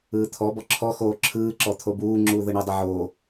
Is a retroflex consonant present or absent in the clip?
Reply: present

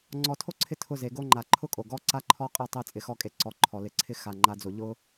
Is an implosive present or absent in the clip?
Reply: absent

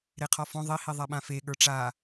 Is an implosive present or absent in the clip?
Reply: present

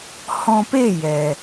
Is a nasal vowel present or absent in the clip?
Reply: present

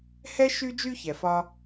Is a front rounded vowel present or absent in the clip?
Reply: present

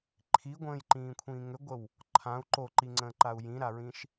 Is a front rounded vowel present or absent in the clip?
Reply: present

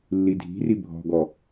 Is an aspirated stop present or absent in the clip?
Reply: absent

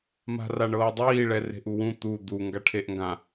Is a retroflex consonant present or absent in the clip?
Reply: present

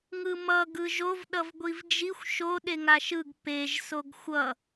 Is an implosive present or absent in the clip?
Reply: present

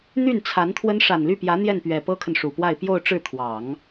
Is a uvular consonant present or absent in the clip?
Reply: absent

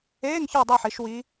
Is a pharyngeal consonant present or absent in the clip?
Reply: present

